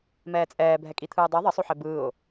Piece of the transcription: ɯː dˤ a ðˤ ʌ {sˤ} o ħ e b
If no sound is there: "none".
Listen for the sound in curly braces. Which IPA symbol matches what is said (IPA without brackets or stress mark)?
sˤ